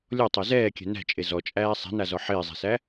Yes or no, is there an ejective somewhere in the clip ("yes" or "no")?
yes